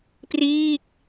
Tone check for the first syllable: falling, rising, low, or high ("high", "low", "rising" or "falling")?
falling